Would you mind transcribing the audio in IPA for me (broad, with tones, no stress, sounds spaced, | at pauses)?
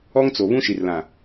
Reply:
ɔ˦ ŋ t͡s o˨ β ũ˦ ʃ i˨ r l ã˨